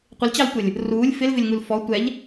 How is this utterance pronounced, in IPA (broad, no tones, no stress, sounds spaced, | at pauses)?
qʷ ɪ l t͡ɕ ɑ l tʷ ə lʲ | r uː lʲ f ɪ l v ɪ lʲ ŋ u l f ɔ tʷ ɛ ʎ